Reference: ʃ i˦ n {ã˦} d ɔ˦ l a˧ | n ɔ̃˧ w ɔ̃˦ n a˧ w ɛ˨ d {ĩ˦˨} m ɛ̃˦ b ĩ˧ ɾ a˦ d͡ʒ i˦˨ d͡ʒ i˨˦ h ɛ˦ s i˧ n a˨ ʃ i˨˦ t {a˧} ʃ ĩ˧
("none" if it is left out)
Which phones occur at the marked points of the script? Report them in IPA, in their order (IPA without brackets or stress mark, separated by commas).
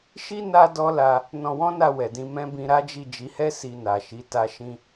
a˦, ĩ˧, a˧